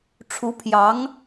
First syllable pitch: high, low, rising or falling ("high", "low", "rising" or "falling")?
rising